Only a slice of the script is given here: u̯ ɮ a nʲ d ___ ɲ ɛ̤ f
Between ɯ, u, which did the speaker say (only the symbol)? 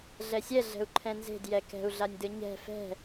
ɯ